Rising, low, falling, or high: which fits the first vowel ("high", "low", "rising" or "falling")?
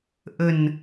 low